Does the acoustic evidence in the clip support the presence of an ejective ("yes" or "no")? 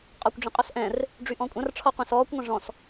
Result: yes